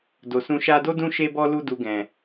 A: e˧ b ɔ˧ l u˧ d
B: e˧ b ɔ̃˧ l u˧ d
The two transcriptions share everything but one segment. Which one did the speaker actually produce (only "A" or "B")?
A